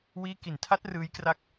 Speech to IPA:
wiː˦˥ ki˨˩ntʰa˦˥t̚ rɯː˦˥jkra˥˩k̚

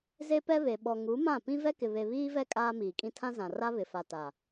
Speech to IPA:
ze˦pɛ˦βe˨ ɓɔ˨ŋu˨˦mã˦˨pĩ˦ vɛ˦kɪ˨ βe˨βiː˦vɛ˦ kʼaː˦miː˨kʼĩ˦ tʰã˦ zã˨ ra˦βɪ˨fa˨ ta˨

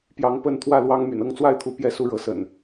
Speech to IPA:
pjɑ˨˦ŋpə˥˨n t̪ʰwä˥˨ lwɑ˦ŋ my̰˨˩nɤ˥˨ŋt͡swa˥˨ɪ̯t̪ʰu˨˦ pjɛ˥˨ su˥˨ɻɤ˨˦sə̰˨˩n

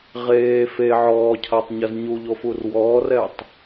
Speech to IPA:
ʁeː fe ʕɔːcʰatˤɲɐz ɲuʎofur wɔːrɛtˤ

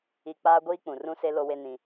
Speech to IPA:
i˨ k͡paː˦ɡʷiː˦k͡pũ˨ rũ˦se˦ lo˦we˦ nĩ˦

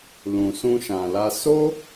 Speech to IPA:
lũ˨sũ˧ʃã˨la˧ so˦

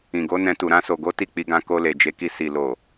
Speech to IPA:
ĩ˨ɡo˨˦nɛ̃˧tu˨ ɾã˧so˨ɡo˨˦ ti˦˨k͡pi˧ɡã˧ ko˧le˨d͡ʒe˨˦ki˧ si˨lo˨

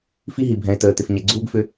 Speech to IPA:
fi˦ɦi˨bʱɛ̃˨e̯təː˨ tɪ˨fɲɛ˨ ɡ͡ǀuː˦ɡfʏ˦

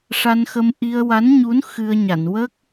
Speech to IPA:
ʂa˧nxə˧m ʔi˧ə̯wa˧˥nɲu˧˥n xɨ˧ə̯ɲa˨˩˨n wə˦˥k̚

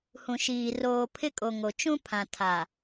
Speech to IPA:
hũ˨ʃiː˨ roː˨pʰɪ˦kʼo˨ ŋo˨ t͡ʃũ˦pʰã˨ tʰa˨

